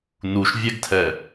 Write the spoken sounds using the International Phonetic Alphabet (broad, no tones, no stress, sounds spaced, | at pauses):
n u ʃ vʲ ɛ ɡ tʰ ɛ